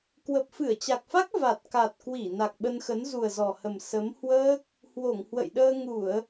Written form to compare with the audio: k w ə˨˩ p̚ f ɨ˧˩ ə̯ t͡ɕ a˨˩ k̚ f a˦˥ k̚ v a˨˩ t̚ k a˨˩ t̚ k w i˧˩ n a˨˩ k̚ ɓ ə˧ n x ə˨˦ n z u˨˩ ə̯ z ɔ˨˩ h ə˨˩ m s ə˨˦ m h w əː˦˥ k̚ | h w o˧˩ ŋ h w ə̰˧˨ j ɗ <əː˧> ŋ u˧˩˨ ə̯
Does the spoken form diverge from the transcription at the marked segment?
no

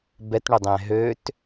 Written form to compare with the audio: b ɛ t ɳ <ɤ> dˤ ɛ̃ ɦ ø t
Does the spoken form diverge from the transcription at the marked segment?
yes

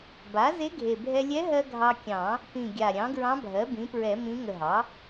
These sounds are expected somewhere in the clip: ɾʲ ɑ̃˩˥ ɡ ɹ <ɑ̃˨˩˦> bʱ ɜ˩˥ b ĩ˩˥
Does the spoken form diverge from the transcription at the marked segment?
yes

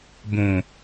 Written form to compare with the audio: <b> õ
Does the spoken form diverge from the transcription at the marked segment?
no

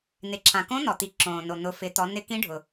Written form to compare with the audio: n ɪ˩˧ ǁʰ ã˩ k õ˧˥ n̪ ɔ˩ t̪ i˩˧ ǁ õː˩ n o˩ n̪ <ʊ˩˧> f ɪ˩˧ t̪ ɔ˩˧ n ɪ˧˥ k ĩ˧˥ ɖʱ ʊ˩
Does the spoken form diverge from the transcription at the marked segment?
no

